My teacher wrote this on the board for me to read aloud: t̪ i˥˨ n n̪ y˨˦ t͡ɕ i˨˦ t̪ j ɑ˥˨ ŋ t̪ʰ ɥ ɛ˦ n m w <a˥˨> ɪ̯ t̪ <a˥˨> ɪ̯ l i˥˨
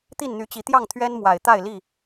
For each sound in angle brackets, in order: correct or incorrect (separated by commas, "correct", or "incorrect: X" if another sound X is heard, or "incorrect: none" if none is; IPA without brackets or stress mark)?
incorrect: a˨˩, correct